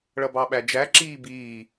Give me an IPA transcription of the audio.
ɭʌbɑɓæd͡ʒæ ǁiːbiː

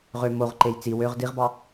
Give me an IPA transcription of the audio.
ʁø moʁǃej t͡si wøʁ diʁbɑ

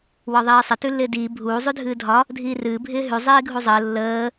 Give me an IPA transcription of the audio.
wɒðˤiːsˤɪ tʉlːɪːdiː bʱuː zˤʉdʱɨːdʱɒ | dʱiːrɨː bʱɪːɦʉ zˤiːɡʱuzˤəː lːəː

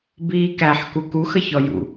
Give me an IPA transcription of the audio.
biːkæħ kukux əçɔjṵ

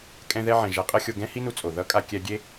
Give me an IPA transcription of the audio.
kʼɛ̃˧ðɛ˧ʕɛ̃˨ ʒa˧qʼʌ˦xʲo˧ ɡɛ̃˦hi˦nu˧ t͡sʼo˨ ðʌ˦kʼa˧ kʲɛ˧ɡʲe˦

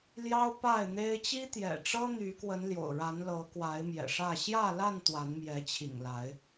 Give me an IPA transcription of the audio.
ljɑ˦ʊ̯pa˥˨ɪ̯n̪e˦ɪ̯ t͡ɕi˦t̪jɛ̰˨˩ʈ͡ʂɤ˦ n̪y˨˦kwə˨˦n ljo̰˨˩ʊ̯ɻa˨˦nlɤ˨˦ kwa˨˦ɪ̯ mjɛ̰˨˩ʂä˥˨ ɕjä˥˨la˥˨n t̪wa˨˦nmjɛ˨˦t͡ɕʰḭ˨˩ŋla˨˦ɪ̯

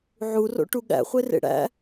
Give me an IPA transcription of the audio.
ʕuro̰ʈu ɠæ̰χʷerḛ ɽæ̰

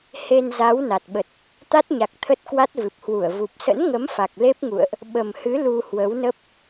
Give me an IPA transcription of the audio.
he˧nza˨˦w na˨˩t̚ɓə˨˩t̚ | t̪a˦˥t̚ɲa˨˩k̚ t̪ʰə˦˥t̚kwa˦˥t̚vɨ˨˩p̚hwu˧˩ə̯ vu˨˩p̚sə̰˧˥nŋə˨˦m fa˨˩k̚le˦˥p̚ŋṵ˧˨ə̯ʔ | ɓə˨˩mhɨ˨˦ lu˧hwə˨˦wnə˦˥p̚

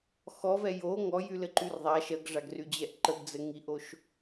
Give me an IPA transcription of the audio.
xɔvɛ jo ŋɔjylɘǃyr ðˤa ʃɜɡʐaɡryd͡ʑɛʔ ǃəɡd͡zɘ ŋiʔoʃ

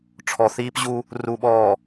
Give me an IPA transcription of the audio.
ʈ͡ʂʰɔ˨ θiː˦pʑu˦ | ru˨ɓɔː˨

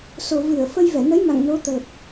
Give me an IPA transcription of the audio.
so˨˩vɨ˧˩ə̯ fə˧jvɛ˧˩nə˨˦jma̰˧˨ŋ no˨˦t̪ə˨˩t̚

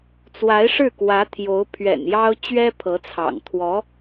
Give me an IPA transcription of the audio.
t͡swa˧˥ɪ̯ʂɻ̩˥˩kwä˧˥t̪ʰjo˧˥ʊ̯ pʰɥɛ̰˨˩njɑ˥ʊ̯ t͡ɕɥɛ˥pʰɤ˧˥t͡sʰɑ̰˨˩ŋ t̪ʰwɔ˧˥

